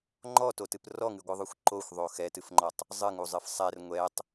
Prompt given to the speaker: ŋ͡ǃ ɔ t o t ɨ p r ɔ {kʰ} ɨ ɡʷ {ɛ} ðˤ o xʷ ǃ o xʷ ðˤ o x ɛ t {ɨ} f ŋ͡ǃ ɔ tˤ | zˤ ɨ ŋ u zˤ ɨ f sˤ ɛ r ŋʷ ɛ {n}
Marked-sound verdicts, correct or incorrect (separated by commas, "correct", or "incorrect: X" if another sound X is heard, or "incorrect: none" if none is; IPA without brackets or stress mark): incorrect: ŋ, incorrect: ɨ, correct, incorrect: tˤ